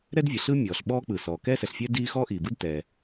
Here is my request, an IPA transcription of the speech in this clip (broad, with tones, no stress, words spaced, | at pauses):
ɾɛ˥dvʲɯ˩ɬ ɯ˥ mʲɔː˩ɬɓɔː˥k͡pɯ˩ sɔː˩kɛː˥sɛ˩ɬfʲɛː˥ diː˥ xɔː˥ʔiː˩bɯ˥d tɛ˩